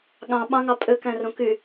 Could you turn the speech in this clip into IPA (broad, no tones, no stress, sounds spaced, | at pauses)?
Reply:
ɠ ɑ̃ ɓ ɑ̃ ŋ ɑ pʼ ø k æ̃ r õ k y